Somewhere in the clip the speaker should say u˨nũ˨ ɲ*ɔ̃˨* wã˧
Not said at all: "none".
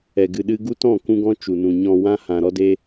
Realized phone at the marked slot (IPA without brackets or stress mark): ɔ̃˨